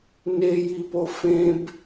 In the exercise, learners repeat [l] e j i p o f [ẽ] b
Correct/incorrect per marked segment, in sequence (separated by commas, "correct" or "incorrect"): incorrect, correct